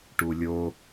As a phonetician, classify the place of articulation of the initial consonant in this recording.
retroflex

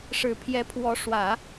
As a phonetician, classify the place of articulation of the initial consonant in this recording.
retroflex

